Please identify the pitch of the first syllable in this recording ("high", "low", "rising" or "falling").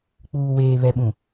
low